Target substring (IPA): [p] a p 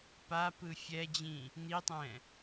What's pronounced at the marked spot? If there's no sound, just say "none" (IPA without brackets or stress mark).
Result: p